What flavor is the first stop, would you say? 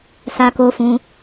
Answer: plain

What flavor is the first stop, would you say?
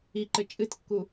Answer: click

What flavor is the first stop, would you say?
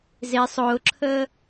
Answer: click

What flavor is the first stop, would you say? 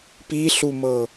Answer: plain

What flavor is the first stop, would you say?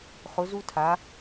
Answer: aspirated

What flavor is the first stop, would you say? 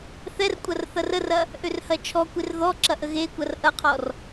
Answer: ejective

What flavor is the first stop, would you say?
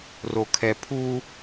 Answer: aspirated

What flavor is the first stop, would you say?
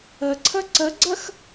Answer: click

